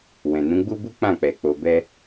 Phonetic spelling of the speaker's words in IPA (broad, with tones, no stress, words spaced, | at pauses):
wɛ̃˨nũ˨˦ɡ͡bu˦bu˦ k͡pã˦˨k͡pɛ˨k͡po˨bɛ˧